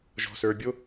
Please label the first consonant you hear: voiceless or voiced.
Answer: voiced